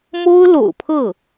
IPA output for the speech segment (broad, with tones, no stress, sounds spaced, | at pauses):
m o˥ ʊ̯ l o̰˨˩ ʊ̯ pʰ ɤ˥˩